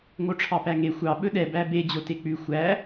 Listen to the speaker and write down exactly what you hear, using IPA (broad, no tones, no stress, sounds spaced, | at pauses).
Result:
ŋ o ʈ͡ʂʰ ɑ p æ ŋ e xʷ ɑ ɓ ɵ ɗ ɛ b æ b e d͡ʑ o t e k͡p ʉ xʷ æ